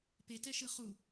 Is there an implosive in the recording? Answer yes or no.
no